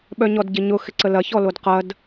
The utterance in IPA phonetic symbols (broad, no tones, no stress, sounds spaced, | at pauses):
ɓ œ ɲ ɔ d ɟ ɪ ɲ ʊ x ɪ ǀ ə l ɐ ç ɔ l o d q ɐ d